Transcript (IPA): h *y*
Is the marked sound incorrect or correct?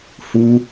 incorrect